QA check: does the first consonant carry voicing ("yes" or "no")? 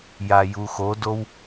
yes